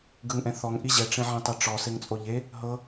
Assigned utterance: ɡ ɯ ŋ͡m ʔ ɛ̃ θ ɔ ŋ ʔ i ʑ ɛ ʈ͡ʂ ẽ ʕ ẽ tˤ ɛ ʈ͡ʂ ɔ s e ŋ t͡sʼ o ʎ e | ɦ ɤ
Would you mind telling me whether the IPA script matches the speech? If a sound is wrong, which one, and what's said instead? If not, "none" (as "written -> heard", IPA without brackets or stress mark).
ŋ͡m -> ŋ